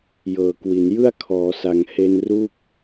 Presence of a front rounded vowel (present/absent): absent